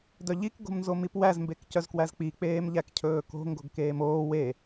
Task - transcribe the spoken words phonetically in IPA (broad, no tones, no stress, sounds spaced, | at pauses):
d œ ʎ i k ɡ o̤ m n z o m i p w æ z m b e k c œ z k w æ z k͡p i k͡p eː m ʎ æ k cʰ ɵː k o̤ ŋ ɡ o̤ ɡ k eː m oː w e